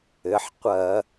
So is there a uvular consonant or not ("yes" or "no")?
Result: yes